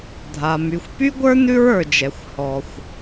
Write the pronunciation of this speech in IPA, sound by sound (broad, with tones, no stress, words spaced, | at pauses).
dʱa˨ my˨xʷpy˦ɡʷə˞˦ nʉ˦ɹə˞˨d͡ʒɛ˨xʷ hɔ˨xʷ